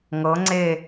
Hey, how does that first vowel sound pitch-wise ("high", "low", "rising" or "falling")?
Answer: rising